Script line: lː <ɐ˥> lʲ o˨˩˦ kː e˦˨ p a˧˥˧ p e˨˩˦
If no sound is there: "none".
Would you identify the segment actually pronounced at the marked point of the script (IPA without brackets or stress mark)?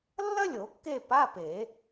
ɐ˥